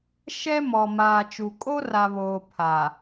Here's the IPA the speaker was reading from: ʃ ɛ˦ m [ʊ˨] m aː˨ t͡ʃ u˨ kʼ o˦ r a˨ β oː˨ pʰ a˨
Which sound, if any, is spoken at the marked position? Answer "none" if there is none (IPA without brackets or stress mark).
ɔ˨